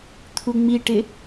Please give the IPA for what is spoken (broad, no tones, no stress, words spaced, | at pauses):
t̪ʰuŋ͡miʈɪ